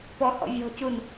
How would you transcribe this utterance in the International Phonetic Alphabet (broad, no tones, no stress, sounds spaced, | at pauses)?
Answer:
p ɔ h ɔ̰ vʲ ɔ̤ c u n